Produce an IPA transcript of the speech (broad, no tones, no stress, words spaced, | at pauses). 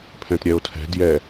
pʰɛ̃tɾʲɛo̯tʰɛ̤ djɛ